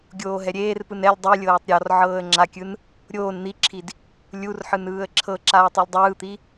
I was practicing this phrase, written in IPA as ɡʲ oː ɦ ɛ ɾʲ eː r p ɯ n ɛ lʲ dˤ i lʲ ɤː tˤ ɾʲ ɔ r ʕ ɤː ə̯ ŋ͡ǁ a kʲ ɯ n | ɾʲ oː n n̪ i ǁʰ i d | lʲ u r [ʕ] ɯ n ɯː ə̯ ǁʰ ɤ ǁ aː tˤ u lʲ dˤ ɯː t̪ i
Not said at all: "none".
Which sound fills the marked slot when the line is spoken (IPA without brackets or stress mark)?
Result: ħ